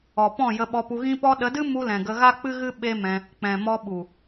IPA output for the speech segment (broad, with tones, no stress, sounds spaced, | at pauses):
ɔ˨ p ɔ̃˦˨ j ə˧ ɓ ɔ˧ p u˧ ɣ ĩ˧ p ɔ˧ ɗ ə˨˦ d ɨ˦ m u˧ l ɛ̃˨ ɡ ə˧ ɣ a˦ k͡p ɨ˦ ɣ ɨ˦ ɓ e˦ m ɛ̃˧ | k͡p ɛ̃˨ m ɔ˧ ɓ u˨